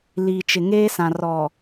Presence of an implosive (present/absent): absent